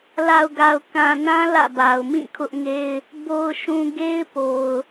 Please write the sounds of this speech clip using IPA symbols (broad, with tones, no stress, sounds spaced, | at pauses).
l a˨ ʊ̯ ɡ a˨ ʊ̯ k ã˨ n ã˦ l ä̰˦˨ b a˨ ʊ̯ m ĩ˦˨ kʰ ʊ˦ ʔ ŋ e˦ ɪ̯ | b o˨ ʊ̯ ʃ ũ˨ ɡ e˦ ɪ̯ p o˨ ʊ̯